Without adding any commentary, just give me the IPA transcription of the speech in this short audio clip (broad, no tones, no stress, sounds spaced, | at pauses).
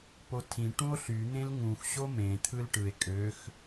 p o tʰ ĩ ʈ ũ o̯ ɬ y n̪ ẽ l ŋ ũ x ɕ o m ẽ t̪ʰ ɯ l ʈ ɯ e̯ kʼ ø x